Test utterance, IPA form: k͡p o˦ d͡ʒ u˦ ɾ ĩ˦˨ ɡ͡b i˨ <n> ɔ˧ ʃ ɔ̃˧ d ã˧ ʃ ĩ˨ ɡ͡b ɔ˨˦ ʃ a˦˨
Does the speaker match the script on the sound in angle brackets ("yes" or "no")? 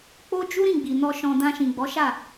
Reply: yes